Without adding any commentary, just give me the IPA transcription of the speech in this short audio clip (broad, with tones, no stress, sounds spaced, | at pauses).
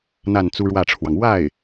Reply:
n̪ a˥˩ n t͡s u˥ ɻ w ä˥˩ ʈ͡ʂʰ w ɑ˩ ŋ w a˥˩ ɪ̯